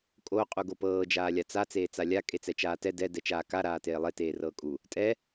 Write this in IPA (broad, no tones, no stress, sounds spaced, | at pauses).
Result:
kʼ o qʼ u ɡ o p ɤː d͡ʒ aː lʲ a t͡s a t͡s eː t͡s a lʲ a kʼ e t͡s ɛ t͡ʃ aː t ɛ d ɛ d ɛ t͡ʃ aː k a ɾ aː t eː lˠ e t eː r ɤː kʼ u | tʼ ɛ